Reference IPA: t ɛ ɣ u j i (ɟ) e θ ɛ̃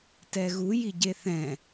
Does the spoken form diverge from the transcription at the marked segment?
no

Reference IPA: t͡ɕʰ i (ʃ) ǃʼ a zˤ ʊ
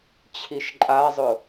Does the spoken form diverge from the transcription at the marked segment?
no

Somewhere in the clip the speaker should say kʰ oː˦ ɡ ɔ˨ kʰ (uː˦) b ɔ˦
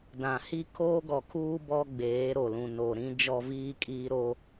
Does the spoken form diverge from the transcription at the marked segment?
no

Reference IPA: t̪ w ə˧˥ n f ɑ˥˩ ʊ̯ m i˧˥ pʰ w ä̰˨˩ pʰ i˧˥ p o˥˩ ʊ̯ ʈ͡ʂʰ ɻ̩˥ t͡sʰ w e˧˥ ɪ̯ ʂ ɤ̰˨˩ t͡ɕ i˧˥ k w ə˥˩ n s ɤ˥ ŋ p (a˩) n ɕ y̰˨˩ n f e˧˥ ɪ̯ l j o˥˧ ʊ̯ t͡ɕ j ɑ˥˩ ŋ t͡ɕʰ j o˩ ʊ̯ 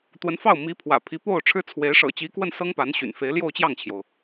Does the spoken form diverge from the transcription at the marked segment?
yes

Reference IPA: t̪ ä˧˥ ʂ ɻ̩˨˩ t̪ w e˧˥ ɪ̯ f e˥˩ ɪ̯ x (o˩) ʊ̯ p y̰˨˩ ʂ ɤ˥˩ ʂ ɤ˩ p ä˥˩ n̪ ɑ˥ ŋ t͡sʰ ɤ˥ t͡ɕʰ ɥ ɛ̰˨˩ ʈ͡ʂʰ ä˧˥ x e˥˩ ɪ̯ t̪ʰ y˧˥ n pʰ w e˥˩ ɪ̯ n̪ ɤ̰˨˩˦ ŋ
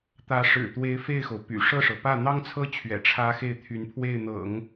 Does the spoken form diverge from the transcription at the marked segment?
no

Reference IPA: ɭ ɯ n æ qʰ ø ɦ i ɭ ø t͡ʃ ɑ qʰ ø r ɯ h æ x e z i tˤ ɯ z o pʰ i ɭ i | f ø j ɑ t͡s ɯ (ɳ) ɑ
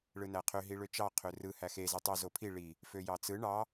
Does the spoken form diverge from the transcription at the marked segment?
no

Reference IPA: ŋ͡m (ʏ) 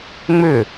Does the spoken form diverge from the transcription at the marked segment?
no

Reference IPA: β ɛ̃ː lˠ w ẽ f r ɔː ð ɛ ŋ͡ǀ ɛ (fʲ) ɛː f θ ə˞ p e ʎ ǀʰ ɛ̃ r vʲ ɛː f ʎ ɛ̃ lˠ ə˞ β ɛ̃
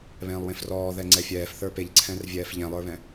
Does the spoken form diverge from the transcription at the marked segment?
no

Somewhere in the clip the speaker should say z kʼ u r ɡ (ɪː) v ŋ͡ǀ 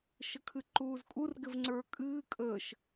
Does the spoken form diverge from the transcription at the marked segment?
yes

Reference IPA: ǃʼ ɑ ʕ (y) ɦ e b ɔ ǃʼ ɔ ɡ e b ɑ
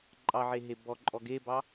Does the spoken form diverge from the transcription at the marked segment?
yes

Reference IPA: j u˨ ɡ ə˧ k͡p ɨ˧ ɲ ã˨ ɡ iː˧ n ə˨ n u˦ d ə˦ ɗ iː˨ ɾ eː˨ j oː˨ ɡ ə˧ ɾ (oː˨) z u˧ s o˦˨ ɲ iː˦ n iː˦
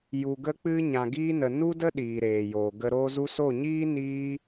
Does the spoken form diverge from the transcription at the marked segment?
yes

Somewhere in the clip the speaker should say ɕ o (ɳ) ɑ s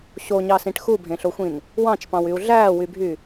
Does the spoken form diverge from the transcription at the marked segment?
yes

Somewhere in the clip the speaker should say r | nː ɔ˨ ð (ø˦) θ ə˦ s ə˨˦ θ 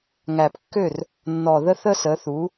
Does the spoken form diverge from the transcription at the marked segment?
yes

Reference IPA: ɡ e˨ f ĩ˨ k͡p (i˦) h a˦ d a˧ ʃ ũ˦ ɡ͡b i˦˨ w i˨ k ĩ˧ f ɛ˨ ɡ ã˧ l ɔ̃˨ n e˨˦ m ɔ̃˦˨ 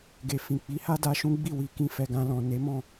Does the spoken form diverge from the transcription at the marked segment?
yes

